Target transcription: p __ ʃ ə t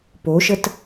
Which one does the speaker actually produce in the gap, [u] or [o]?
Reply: o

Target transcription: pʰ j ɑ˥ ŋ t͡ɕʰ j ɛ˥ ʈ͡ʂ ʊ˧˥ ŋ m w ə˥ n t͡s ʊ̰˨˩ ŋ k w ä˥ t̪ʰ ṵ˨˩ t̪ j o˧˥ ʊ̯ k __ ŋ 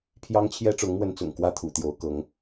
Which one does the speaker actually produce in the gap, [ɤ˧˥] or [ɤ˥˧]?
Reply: ɤ˧˥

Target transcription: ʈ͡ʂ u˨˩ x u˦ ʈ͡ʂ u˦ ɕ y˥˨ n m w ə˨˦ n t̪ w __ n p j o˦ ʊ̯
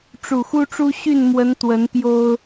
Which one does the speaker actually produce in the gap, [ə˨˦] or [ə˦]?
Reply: ə˨˦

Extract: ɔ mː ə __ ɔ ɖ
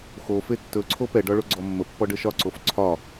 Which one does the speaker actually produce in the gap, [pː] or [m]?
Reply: pː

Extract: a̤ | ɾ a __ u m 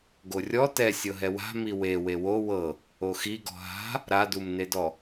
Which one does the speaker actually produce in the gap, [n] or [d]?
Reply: d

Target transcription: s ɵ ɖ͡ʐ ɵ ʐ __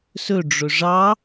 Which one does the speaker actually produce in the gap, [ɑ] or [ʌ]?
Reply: ɑ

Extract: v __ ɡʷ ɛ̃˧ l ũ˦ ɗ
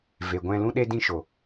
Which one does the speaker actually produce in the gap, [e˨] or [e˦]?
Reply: e˨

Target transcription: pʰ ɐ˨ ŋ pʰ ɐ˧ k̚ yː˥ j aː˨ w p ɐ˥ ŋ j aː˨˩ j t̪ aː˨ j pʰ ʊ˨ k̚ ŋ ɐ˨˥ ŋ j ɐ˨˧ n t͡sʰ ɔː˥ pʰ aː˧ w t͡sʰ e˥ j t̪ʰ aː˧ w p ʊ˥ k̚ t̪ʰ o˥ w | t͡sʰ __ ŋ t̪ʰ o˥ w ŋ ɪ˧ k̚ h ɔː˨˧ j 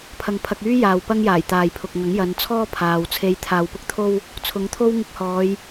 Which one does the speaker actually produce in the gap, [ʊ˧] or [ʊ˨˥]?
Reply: ʊ˨˥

